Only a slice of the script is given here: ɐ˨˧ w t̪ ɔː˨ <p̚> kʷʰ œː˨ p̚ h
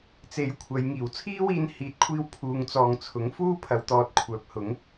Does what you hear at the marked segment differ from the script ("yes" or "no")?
yes